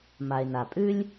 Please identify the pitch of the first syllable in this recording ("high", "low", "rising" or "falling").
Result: low